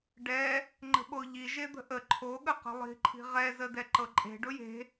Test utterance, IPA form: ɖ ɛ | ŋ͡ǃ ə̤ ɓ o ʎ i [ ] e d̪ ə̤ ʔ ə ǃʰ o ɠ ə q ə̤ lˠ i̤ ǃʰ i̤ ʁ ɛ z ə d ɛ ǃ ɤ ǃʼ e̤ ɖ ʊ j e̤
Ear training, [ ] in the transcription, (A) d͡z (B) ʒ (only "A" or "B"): B